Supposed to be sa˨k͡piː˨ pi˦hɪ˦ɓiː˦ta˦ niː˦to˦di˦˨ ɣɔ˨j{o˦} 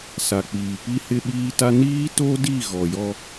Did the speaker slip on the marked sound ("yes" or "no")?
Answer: yes